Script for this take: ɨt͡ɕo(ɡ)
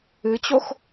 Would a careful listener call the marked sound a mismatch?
yes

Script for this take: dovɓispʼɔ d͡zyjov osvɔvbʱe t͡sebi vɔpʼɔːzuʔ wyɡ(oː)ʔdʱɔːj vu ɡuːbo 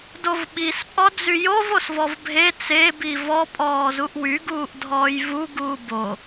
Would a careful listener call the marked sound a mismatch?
yes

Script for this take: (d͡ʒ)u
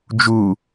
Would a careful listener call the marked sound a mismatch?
no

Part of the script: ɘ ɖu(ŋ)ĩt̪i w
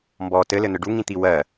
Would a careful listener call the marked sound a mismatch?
no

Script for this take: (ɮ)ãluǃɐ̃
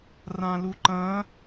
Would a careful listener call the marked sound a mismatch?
yes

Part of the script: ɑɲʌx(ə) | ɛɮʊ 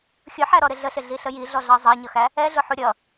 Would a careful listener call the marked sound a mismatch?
yes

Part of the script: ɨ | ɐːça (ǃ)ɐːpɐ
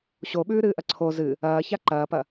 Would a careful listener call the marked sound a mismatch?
no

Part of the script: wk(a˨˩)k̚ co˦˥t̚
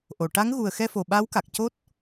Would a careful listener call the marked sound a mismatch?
no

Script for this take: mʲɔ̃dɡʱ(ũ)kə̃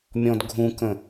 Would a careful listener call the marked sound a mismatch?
no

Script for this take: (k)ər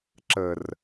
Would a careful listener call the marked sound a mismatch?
yes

